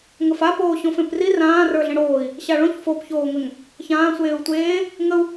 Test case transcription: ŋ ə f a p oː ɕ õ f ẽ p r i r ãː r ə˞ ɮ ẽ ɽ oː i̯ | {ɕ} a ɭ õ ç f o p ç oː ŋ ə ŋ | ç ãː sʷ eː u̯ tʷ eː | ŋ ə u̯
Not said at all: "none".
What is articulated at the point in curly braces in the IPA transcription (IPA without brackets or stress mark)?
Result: ɕ